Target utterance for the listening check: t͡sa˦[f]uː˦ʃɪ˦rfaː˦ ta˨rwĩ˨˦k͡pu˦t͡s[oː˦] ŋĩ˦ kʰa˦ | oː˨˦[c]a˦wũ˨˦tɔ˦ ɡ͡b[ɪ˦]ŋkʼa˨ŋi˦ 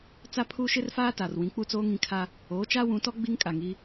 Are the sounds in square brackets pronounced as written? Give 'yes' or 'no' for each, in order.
no, yes, no, no

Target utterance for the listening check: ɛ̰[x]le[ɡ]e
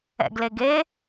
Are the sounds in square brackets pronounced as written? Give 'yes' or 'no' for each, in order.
no, yes

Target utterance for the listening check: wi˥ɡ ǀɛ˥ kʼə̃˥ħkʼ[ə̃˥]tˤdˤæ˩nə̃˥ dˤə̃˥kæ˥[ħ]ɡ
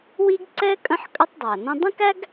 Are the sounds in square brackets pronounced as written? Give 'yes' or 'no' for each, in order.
no, no

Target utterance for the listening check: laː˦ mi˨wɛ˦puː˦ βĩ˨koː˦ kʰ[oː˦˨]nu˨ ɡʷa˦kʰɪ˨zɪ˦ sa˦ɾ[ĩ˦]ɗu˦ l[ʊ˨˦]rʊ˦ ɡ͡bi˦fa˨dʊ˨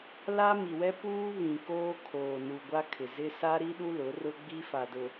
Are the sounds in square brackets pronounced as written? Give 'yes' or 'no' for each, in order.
no, no, yes

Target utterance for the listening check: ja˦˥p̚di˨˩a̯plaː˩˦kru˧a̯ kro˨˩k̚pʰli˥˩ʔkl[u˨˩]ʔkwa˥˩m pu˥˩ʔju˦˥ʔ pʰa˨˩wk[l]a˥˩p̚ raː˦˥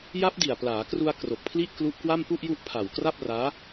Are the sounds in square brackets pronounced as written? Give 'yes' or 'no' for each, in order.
no, no

